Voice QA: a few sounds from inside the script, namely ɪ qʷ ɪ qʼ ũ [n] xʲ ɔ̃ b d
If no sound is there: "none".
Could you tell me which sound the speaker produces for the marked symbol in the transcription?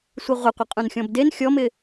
n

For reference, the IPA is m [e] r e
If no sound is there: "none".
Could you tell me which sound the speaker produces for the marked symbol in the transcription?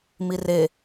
i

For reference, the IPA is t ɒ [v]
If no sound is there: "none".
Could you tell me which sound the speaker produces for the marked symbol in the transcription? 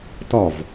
v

